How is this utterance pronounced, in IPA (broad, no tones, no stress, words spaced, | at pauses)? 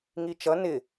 ŋit͡ʃʌ nɪ